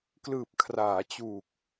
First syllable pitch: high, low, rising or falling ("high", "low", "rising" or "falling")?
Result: low